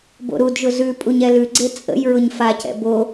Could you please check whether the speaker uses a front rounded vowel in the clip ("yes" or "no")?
no